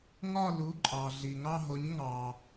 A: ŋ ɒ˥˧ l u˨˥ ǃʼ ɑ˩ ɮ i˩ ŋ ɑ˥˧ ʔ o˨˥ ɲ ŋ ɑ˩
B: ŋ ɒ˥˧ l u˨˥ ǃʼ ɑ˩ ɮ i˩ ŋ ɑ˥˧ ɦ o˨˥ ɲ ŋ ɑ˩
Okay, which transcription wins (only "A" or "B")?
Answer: B